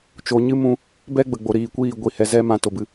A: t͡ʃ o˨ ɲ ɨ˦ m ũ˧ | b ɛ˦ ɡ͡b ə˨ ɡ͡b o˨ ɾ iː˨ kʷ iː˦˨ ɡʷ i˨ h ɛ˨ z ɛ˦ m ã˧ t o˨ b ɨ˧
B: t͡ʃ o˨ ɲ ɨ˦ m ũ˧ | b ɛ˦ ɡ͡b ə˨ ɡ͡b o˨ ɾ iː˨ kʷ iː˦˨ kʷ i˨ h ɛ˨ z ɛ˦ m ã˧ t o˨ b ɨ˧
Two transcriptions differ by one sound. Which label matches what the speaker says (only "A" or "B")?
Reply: A